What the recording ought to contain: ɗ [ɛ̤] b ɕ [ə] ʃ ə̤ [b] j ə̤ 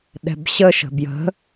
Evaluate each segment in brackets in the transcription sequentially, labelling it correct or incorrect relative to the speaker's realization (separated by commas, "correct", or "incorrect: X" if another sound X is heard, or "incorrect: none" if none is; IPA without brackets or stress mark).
correct, correct, correct